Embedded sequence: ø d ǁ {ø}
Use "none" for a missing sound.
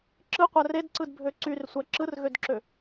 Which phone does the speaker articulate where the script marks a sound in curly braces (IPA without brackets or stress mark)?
ø